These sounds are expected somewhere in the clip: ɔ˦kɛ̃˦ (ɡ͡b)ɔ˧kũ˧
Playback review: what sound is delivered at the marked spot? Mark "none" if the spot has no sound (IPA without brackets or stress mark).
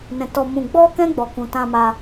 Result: ɡ͡b